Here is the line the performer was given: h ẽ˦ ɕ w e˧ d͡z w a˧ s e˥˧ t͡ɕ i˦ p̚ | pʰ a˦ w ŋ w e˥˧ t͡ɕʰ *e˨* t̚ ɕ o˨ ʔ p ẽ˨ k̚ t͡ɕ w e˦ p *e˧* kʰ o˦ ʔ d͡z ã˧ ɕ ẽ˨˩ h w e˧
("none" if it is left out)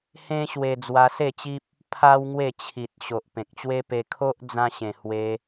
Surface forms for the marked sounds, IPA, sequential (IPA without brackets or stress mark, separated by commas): i˨, e˧